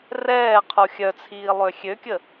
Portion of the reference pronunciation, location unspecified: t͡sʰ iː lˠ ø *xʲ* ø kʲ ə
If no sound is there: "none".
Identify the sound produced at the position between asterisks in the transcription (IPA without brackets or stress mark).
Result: xʲ